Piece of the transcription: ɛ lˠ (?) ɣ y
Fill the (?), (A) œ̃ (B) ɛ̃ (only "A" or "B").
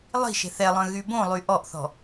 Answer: A